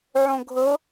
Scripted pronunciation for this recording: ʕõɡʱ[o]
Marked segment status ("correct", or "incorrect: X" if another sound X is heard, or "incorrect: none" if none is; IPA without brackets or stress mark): incorrect: ɤ